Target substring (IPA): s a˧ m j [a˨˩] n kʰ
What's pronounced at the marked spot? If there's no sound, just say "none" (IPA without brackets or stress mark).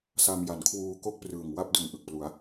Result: a˩˦